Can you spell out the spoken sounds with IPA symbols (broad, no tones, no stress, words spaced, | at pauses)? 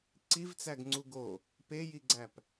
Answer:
ǀivt͡sæɡŋ͡ǀu ɡo | pejiɡ͡ǀæp